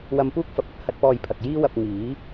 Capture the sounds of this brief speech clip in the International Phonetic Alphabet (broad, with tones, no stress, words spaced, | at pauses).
wɐ˧mpuː˥k̚fɐ˨p̚ɐ˨t̚ hɐ˥t̚pɔː˧jpʰɐ˨k̚ jiː˥wɐ˧p̚ ŋiː˨˥